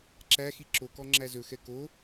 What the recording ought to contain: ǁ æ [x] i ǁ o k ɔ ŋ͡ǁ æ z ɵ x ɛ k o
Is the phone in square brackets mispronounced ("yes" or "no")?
no